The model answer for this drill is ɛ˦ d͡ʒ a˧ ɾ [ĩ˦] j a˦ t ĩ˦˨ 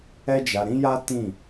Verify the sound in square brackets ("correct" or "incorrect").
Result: correct